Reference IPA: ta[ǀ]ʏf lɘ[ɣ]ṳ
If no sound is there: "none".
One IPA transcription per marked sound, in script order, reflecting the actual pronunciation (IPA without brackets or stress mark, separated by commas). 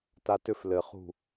t, χ